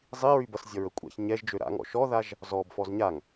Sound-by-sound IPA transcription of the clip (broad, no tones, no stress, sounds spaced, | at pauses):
zˤ i ɹ y b ʌ s zʲ ʌ ɹ ə kʷʼ a̰ ç ɲ ɛ ʒ d͡ʒ ø ɾ a̰ ŋ ɔ̰ ʃ ɔ ð a ʒ | z ɔ b f ɔ z ɲ a ŋ